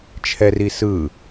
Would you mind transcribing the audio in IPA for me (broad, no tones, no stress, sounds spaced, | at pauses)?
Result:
t͡ʃʰ ɛ r i s ɯ